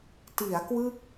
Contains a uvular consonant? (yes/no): no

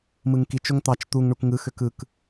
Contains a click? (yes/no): no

